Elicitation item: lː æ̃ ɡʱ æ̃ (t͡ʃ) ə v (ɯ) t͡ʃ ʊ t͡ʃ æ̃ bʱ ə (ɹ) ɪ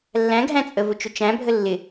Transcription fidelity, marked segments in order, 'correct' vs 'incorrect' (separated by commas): incorrect, incorrect, incorrect